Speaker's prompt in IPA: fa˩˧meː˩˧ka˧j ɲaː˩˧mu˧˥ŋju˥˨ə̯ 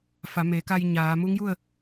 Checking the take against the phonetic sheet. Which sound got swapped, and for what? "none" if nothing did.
none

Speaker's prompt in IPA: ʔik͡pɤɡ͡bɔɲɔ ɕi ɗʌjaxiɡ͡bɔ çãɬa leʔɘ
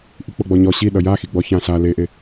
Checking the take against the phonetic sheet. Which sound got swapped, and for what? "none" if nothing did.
ɘ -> e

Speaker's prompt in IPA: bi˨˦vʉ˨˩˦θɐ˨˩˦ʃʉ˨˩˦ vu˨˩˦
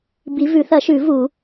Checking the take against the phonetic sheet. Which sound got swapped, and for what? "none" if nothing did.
none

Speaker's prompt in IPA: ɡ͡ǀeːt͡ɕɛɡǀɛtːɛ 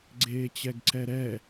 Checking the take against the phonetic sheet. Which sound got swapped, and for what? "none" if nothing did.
tː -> ɾ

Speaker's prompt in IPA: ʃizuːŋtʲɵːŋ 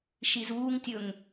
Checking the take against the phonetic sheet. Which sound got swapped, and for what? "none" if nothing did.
ɵː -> ɵ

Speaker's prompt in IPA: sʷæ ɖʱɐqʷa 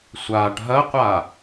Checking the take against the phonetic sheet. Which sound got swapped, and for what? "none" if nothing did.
æ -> a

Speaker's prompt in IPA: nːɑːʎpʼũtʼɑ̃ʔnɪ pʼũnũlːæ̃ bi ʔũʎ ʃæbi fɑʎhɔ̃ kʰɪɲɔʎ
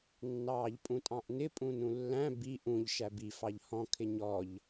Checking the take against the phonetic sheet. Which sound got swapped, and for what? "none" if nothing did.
none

